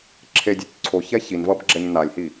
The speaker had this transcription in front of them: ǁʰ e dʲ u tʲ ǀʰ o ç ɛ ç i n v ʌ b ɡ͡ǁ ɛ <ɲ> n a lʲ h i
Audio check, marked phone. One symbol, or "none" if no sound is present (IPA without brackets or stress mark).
ɲ